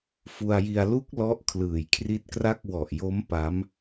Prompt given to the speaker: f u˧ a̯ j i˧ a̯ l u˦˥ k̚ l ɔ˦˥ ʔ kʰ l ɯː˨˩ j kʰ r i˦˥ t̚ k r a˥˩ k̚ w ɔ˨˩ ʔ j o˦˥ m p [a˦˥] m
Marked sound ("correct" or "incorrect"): correct